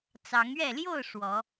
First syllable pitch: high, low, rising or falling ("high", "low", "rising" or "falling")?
rising